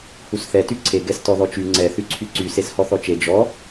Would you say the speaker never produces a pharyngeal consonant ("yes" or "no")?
yes